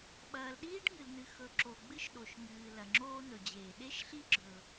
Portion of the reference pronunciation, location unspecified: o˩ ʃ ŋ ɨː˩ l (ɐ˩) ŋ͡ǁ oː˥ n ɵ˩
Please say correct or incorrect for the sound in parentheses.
correct